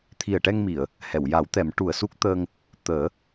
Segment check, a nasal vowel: absent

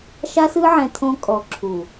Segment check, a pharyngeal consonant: present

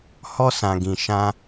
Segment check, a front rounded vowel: absent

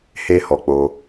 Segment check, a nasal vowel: absent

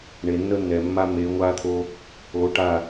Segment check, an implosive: absent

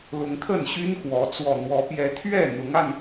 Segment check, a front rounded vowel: present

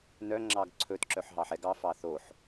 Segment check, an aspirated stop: present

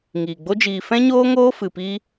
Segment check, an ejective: absent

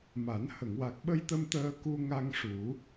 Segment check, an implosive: present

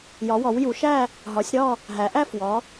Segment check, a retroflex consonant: absent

